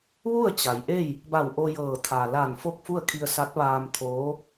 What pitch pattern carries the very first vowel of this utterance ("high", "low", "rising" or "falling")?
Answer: falling